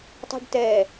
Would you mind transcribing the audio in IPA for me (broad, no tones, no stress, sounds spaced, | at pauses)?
tˤ o̤ ɖ t ɛ